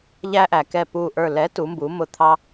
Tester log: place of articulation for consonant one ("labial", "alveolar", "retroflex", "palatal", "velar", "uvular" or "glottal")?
palatal